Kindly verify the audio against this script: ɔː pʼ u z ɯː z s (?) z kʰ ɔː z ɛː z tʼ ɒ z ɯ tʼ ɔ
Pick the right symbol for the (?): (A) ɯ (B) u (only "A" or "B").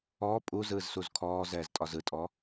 B